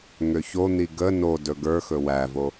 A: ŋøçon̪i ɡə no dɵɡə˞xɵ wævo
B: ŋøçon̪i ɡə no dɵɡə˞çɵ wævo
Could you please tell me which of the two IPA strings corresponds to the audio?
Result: A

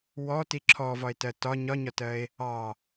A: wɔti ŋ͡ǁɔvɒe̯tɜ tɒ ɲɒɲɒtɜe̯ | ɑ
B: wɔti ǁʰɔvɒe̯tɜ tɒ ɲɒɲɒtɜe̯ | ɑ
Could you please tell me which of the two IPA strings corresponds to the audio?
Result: B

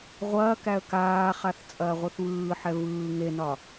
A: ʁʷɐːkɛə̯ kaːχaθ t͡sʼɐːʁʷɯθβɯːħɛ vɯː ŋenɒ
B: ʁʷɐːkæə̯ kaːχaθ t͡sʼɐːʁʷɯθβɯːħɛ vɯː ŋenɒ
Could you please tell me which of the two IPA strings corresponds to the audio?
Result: B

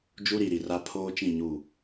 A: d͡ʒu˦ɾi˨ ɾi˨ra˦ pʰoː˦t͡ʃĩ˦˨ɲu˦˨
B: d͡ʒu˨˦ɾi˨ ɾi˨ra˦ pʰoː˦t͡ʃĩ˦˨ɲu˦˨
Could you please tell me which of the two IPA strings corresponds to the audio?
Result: A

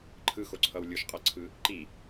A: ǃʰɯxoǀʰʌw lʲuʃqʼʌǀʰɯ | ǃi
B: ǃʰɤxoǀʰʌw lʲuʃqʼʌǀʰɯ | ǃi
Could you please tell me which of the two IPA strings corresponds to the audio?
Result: A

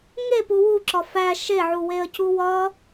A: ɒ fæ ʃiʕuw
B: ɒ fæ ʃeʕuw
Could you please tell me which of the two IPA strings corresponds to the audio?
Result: B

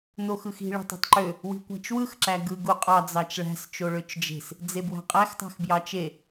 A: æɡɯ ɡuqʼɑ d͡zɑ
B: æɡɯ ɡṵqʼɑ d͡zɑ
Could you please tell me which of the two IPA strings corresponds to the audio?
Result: A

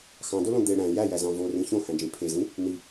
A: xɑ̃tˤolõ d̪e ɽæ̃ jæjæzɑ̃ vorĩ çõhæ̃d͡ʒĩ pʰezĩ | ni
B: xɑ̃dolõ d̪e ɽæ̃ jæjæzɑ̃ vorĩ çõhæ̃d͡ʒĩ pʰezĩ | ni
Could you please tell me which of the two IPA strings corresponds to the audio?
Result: B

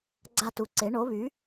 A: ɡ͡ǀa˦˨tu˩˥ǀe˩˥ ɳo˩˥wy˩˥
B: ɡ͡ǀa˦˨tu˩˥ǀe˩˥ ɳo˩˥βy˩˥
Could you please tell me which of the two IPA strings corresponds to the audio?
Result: B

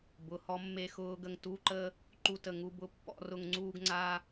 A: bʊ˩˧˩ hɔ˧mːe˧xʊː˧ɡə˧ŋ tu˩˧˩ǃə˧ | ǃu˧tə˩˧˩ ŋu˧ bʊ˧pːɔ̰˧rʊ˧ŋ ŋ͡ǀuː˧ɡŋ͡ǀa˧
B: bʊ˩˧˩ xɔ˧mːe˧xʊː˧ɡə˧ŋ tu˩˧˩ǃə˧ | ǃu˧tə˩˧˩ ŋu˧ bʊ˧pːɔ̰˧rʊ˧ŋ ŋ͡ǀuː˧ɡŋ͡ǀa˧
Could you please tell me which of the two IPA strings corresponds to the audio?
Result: A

